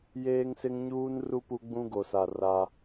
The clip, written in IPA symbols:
jeː˦ŋsɪ˦ŋɲuː˦nru˦ pu˦ɡ͡bũ˦ɡo˨sa˨ ra˦

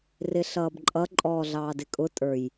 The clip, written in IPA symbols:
rɪɬʌːbǃʼʌ ǃʼɔːɮɑːdɪkʼʊ tʼə˞j

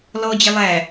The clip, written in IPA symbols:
lɔd͡ʑɪ lˠæ

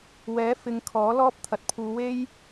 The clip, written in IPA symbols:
wɛː˨˥ fɪ˨˧ŋkʰɔː˨˥lɔː˥p̚ t̪ʰɐ˨t̚pʰuː˨˧we˥j

